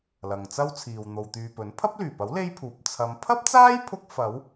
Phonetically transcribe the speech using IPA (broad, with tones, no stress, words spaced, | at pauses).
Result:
lɐ˨ŋt͡sɐ˥wt͡sʰiː˨w n̪o˨wt̪yː˨pɵ˨˥n pʰɐ˥p̚lyː˨˩pɐ˨˥w le˥jpʰuː˨p̚ t͡sʰɐ˨˧m pʰɐ˥p̚t͡saː˥jpʰʊ˧k̚fɐ˨˧w